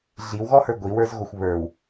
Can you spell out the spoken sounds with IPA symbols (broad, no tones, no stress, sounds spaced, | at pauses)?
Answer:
ɮ i w ɣ ɔ h ə˞ ɡʷ i w ə˞ z ɣ o xʷ β ə˞ w